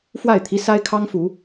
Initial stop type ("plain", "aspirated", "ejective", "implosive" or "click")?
aspirated